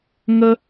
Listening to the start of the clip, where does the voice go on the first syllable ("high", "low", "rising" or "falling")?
high